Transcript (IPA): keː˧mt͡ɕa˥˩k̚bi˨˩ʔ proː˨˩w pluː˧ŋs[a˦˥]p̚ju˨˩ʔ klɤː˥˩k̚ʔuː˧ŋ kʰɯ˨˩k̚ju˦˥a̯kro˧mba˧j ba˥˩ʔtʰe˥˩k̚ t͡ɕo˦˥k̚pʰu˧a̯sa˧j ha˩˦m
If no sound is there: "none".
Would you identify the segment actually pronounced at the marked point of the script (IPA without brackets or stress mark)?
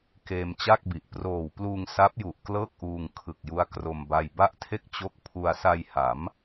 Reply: a˦˥